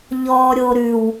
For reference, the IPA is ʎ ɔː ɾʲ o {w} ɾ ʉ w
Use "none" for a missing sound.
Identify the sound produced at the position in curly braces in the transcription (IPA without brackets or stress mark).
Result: none